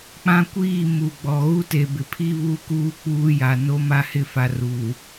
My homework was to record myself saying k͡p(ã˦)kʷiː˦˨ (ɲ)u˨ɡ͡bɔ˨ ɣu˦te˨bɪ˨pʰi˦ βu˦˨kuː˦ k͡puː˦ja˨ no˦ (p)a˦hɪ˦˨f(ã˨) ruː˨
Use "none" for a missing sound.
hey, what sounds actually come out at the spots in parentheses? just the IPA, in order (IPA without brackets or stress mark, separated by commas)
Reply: ã˦, m, m, a˨